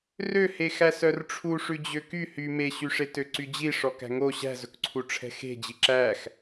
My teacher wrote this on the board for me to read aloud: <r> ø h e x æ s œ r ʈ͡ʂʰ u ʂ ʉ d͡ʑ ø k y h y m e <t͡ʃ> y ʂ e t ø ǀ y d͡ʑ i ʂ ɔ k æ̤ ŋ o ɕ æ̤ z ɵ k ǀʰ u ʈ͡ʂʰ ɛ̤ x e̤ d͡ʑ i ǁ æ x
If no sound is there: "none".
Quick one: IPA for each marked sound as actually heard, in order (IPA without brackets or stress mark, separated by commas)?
r, ɕ